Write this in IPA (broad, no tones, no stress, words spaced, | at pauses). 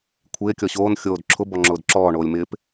kʷʰɪː kʲɔɕoːn xʲoːdǁʰʊ bɔŋ͡ǁʊːdǁɔː ɳoːlʲmɪːp